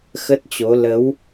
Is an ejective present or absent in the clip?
absent